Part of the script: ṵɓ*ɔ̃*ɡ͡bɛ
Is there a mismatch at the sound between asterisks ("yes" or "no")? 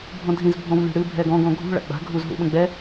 yes